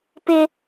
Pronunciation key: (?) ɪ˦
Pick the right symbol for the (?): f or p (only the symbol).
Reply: p